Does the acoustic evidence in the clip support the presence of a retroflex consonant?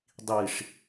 yes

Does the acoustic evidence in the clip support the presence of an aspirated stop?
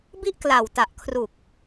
yes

